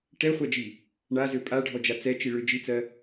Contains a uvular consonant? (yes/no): yes